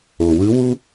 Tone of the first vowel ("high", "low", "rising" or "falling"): low